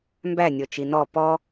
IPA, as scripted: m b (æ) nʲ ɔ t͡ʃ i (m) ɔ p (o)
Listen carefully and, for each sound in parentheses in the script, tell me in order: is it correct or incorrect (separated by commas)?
correct, incorrect, incorrect